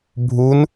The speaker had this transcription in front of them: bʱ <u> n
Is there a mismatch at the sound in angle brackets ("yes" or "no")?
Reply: no